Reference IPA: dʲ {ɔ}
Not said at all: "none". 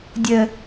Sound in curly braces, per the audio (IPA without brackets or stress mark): ə